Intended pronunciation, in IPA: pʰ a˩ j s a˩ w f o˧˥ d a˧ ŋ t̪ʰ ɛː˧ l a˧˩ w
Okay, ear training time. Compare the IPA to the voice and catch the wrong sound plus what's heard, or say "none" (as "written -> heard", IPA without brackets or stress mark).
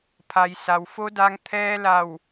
none